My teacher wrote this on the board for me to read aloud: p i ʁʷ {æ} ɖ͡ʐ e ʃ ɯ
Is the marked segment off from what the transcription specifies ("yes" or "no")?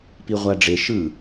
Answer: no